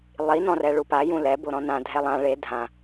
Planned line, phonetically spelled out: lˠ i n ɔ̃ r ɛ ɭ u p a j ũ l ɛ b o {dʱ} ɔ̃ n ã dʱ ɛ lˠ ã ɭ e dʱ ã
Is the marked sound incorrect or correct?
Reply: incorrect